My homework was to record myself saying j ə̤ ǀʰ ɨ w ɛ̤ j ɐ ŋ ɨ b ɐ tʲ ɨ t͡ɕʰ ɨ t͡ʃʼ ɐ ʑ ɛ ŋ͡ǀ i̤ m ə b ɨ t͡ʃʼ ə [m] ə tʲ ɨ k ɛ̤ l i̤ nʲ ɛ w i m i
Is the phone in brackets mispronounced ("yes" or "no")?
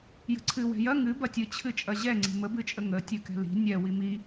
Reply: yes